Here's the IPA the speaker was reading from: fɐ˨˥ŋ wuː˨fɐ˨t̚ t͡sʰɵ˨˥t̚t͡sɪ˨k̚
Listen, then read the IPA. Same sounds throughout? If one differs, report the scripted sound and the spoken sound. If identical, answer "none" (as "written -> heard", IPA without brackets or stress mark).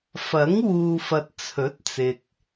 none